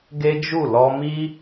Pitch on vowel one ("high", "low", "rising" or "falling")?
high